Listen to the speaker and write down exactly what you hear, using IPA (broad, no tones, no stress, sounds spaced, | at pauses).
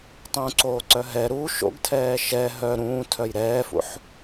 tˤ ũ ǀ oː ǀ œ ɦ ɛ ɾ u ʃ o̰ ɡ tʰ ɛː ʃ ɛ ɦ œ ɾ ũː tʰ œ j ɾ ɛː f ṵ ħ